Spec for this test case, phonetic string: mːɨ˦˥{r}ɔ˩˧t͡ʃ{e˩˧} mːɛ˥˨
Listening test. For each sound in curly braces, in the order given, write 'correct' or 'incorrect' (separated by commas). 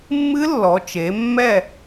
incorrect, correct